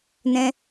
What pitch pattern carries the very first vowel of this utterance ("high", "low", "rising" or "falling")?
high